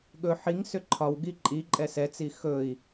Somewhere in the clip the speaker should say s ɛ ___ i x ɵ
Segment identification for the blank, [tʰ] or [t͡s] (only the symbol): t͡s